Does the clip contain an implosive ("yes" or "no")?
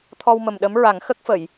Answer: yes